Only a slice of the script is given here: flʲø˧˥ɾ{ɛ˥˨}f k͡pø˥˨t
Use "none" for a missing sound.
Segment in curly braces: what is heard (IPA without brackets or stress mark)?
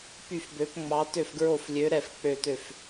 ɛ˥˨